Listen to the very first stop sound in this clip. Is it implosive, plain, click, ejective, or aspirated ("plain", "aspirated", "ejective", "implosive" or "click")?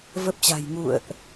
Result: plain